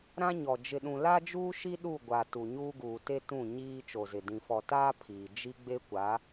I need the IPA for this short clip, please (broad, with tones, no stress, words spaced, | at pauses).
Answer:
ɾã˦ɲɔ˨ d͡ʒɪ˨ɗũ˨ la˦d͡ʒuː˦ʃi˦ ɗu˦˨ɡʷa˨ tu˨ɲuː˦ɡuː˨te˦ tũ˦˨ɲiː˦ t͡ʃo˨zɪ˨ dĩ˨fɔ˨taː˦ pʰiː˨ d͡ʒi˦ ɡ͡be˦kʷa˨˦